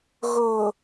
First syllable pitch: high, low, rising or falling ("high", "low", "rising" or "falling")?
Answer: low